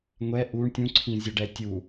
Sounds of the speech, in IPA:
ŋʷ ɛ ʔ u ɳ tʲ ũ ǀʰ ĩ zʲ ʌ ɖ ɛ tʲ u

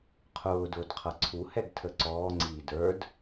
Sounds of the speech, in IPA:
qʰ ʊː d ʊː d qʰ ʌ ǀʰ u h ɛ ɡ tʰ ə ǀ ɔː ŋ͡ǀ iː d ə˞ d

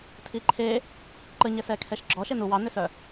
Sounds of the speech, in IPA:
tʰ i ǃʰ e | ǃ ə ɲ ɛ s ɛ kʰ ɛ ʃ ɡ͡ǁ ɔ ʃ e n u w ɑ n ʏ s œ

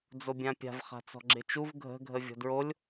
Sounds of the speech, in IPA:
d͡z o bʲ ã pʲ a̤ v χ a̤ t͡s ɔ̤ ɡ͡ǁ ɪ t͡ʃ u v ɡʱ ə̤ ɡʱ ə vʲ ɔ̤ d ɹ o lʲ

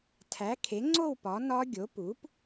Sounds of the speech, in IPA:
tʰ æ˩˥ kʰ e˩˥ ŋ͡ǀ o˥˨ w p ɒ˩˥ n ɒ˦˥ ɡʲ o˩˥ p u˩˥ p

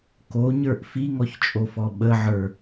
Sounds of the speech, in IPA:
k o ɲ ə˞ ʔ f i ŋ ɔ ç t͡ʃʼ o f ɔ ɓ ə ʕ ə˞

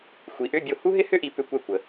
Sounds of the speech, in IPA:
xʷ i˨˦ ʔ ʏ˧˥˧ bʲ o˦˨ h u˥ ɦ ɪ˥ h ʏ˥ ʔ i˨˦ p ʏ˧˥˧ kʷ ɛ˦˨ kʷ ə˨

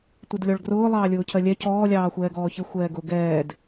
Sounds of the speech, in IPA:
tʷ ɪ d lʲ ɔ ɭ ɡ r ʊː lˠ ɑː lʲ ʊː cʰ ɜ lʲ ɛ cʰ ɔː lʲ ɑː xʷ ɛː ɡ ɔː ç ɪ xʷ ɛː ɡ ʊ ɡ ɛː d

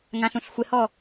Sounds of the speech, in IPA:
ŋ ã ɬ ũ ɬ xʷ ɪ h ɔ

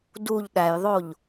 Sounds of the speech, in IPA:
d u ʎ ɗ æ j ðˤ o ʎ

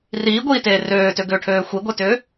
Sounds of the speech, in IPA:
r iː ɡʷ iː t eː r øː t ø ɡ ʏː ʈʰ øː xʷ i ɡʷ e t ʏː

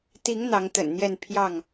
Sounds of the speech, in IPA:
t̪ i˨˦ ŋ n̪ ɑ˨˦ ŋ t̪ ə̰˨˩ n n̪ j ɛ˥˨ n pʰ j ɑ˥˨ ŋ

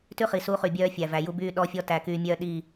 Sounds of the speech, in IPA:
t ʉ˦ χ i˨ s u˦ χ y˨ bʲ œː˦ fʲ æ˨ v æ˨ j u˦ b yː˦ ɗ ɔ˦ fʲ ɔ˦ t æ˨ k yː˨ mʲ œː˦˨ ɗ iː˦˨

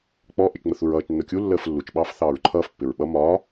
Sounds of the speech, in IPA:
k͡p ɔ ʔ ɪ t͡ʃ ŋ͡m ə θ u ɹ ʌː t͡ʃ nː ʊ kʲ u lː əː f lː u t͡ʃ ɓ ɑː f θ ɑː ɹ ǃʰ ʌː f pː ɪ ɹ ɓ ʌ m ɒ

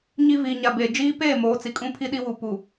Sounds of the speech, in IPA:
ɲ i˨ v iː˨ ɲ a˨ b eː˨ d͡ʒ iː˦ p eː˦˨ m oː˨˦ t͡s i˨ kʼ ũ˦ pʰ i˦ ɗ i˦ w u˨ p u˨

